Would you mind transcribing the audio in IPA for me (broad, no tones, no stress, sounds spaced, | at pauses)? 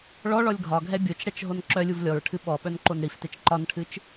ɭ ɔ ɭ ɔ lʲ ɡʱ ɒ ɡʱ ɛ bʲ o t͡ʃ ɽ ɛ t͡ʃ ɦ o n ǁ œ lʲ u v lʲ ɔ ɹ ʈʰ ɨ ɓ ɔ ɓ œ n ǃ o n ɽ i f t e t͡ʃ ǃ ɒ n ʈʰ ɨ t͡ʃ